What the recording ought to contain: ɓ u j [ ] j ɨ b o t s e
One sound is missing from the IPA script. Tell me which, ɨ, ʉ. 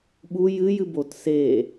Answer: ɨ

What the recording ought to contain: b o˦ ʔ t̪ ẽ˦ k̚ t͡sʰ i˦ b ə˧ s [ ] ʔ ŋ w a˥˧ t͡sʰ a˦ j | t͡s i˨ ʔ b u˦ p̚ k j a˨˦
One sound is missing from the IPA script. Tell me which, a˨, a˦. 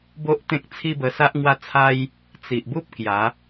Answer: a˦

